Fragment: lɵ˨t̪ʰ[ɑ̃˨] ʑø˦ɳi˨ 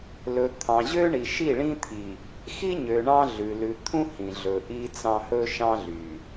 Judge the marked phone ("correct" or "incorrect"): correct